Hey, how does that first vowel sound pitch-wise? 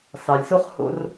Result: low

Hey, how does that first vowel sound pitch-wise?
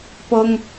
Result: high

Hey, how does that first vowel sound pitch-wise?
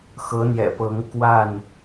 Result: rising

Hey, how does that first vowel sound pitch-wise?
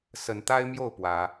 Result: rising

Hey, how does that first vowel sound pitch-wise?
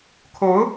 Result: rising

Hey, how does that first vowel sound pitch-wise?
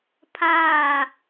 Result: falling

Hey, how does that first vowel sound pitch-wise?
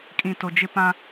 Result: low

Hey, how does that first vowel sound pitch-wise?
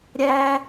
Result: high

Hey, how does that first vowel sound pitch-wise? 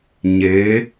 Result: rising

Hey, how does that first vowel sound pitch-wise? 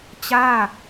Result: falling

